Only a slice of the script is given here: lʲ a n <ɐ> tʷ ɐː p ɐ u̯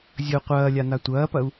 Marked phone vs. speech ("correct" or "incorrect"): incorrect